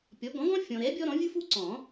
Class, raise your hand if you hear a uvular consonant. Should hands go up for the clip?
no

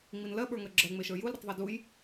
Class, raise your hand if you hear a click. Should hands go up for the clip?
yes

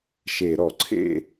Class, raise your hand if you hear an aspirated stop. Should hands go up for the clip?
yes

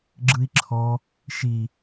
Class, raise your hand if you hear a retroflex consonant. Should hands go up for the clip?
no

